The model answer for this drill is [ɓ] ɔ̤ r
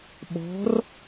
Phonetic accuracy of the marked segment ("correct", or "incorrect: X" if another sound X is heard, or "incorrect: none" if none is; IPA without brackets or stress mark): correct